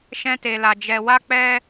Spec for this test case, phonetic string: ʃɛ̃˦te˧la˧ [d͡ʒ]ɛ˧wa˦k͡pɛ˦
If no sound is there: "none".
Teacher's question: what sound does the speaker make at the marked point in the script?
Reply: d͡ʒ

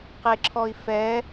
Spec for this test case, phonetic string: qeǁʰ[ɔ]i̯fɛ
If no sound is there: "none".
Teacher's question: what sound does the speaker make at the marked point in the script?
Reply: ɔ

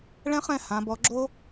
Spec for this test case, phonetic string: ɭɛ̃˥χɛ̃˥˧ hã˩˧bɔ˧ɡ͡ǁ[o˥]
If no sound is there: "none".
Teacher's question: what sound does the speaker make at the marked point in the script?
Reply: o˥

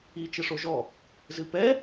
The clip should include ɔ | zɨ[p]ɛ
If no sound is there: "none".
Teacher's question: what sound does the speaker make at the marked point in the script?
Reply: p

